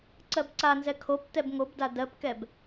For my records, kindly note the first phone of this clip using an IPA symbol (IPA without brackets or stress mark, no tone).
ǀ